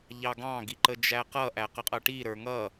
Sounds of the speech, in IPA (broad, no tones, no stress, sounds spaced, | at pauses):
ʎ ɑ ɡ ɑ̃ ɡ i ǃ ə d͡ʒ æ q ʌ ʔ æ q ə qʼ ʌ ʈ i ɾ ə˞ ŋ ʌ